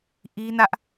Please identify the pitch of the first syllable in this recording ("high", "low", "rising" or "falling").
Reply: high